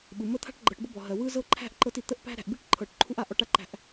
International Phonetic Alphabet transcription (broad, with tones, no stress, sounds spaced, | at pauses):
ɓ ɯ˩ m ə˦ t̪ʰ a̤˥ ʈ ɡ͡ǃ ɤ˨ ʈ b ɤ˥ b ɔ˩ ɦ ɜ˩ w ɯ˥ z ɤ˥ ǃʰ æ̤˥ ʔ ǃ ɤ˦ t i˨ t̪ ə˦ ʔ p æ̤˦ ɾ æ̤˨ ʔ b i˥ ʈ ǃʰ ɤ˨ ʈ ǃʰ u˥ ʔ a˨ ʔ ɔ˦ ʈ a˦ ǃ æ̤˦ ʔ